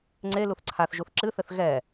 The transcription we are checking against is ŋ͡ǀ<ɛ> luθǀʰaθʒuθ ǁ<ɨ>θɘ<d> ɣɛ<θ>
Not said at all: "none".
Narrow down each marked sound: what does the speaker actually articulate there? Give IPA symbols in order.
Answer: e, ɨ, θ, none

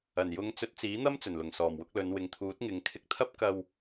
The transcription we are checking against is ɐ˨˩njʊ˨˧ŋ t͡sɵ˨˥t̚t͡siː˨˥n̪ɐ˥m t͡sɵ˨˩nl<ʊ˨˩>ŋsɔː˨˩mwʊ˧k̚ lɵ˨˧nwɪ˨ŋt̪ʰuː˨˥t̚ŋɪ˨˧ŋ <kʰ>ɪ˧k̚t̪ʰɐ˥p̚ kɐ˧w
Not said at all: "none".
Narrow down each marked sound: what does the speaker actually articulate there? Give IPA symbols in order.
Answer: ʊ˨˩, kʰ

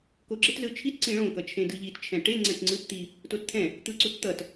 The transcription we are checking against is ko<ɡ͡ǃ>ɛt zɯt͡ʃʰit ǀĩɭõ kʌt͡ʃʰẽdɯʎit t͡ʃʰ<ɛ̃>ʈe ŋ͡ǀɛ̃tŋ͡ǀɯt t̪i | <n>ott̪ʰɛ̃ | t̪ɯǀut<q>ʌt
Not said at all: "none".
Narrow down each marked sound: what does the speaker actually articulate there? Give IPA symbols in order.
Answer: ɡ͡ǁ, ɛ̃, t, t̪

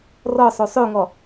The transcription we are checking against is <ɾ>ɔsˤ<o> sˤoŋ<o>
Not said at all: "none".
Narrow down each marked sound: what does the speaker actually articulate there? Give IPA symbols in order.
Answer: r, o, ɔ

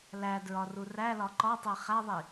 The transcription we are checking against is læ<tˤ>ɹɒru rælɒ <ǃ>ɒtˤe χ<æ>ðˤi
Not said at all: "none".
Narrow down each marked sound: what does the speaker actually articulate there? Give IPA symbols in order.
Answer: d, ǃ, æ

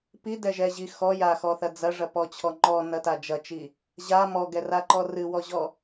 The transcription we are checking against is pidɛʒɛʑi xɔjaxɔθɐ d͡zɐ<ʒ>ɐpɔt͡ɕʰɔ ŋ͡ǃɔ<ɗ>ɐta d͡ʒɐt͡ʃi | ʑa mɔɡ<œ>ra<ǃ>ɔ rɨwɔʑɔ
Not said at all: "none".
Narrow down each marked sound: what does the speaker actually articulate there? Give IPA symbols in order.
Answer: ʐ, n, ɛ, ǃ

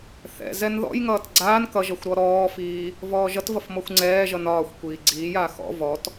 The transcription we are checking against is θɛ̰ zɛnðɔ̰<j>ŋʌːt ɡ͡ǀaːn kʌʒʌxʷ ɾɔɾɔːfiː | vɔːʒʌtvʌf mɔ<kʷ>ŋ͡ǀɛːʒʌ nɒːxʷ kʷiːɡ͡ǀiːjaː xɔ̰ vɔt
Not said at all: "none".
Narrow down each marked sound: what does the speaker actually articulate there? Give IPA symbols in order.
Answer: j, xʷ

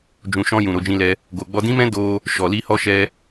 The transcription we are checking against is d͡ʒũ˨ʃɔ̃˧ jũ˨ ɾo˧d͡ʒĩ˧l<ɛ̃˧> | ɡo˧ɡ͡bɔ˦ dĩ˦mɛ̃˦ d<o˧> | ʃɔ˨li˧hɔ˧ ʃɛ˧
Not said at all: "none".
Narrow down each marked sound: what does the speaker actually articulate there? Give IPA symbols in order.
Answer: ɛ˧, o˧

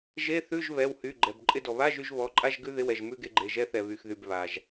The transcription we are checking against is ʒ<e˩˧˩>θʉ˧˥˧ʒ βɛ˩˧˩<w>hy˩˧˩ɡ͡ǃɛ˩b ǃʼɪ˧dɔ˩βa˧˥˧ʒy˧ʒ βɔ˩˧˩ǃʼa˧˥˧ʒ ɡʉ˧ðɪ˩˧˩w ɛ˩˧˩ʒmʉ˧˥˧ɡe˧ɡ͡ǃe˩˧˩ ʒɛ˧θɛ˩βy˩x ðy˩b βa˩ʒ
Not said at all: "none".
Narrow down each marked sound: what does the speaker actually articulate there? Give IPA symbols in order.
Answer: e˧˥˧, w

